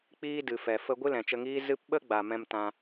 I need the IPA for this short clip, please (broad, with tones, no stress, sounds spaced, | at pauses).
k͡p iː˦ d ɨ˨ f ɛ˨ f ə˧ ɡʷ ɨ˦ l ɛ̃˨ t͡ʃ ə˧ ŋ iː˦ z ɨ˦ p ɓ ə˦ ɡ͡b a˨ m ɛ̃˧ m t ã˧